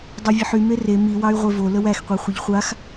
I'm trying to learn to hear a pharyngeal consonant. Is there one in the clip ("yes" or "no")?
yes